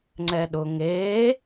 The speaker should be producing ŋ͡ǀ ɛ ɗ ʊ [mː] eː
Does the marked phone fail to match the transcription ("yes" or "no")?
yes